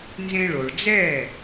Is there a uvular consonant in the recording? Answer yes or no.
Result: no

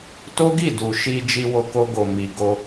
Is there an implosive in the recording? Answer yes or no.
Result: no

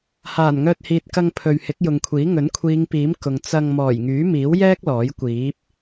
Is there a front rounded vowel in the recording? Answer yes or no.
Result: yes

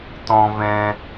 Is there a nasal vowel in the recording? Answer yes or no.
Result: yes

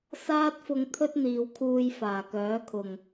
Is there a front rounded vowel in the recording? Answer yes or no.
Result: yes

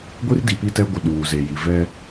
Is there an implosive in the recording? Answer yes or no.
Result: yes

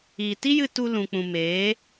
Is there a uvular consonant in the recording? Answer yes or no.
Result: no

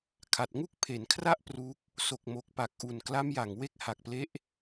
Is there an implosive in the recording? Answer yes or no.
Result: no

